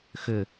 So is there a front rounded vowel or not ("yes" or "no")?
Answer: yes